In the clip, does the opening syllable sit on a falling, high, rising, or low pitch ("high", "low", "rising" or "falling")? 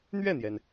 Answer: falling